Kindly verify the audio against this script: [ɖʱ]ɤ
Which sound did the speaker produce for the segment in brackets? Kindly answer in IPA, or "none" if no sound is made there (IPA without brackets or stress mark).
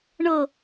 ɳ